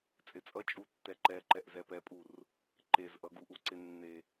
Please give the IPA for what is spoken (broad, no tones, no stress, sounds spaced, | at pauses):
t͡sʼ ɪ t͡sʼ ʌ t͡ʃʼ u tː ɛ ǃ ɛ ǃ ɛ ʔ z ɛ p ɛ pʼ u r | ǃ e z ʔ ʌ ɡ u ʔ u ǀ ɪ nː e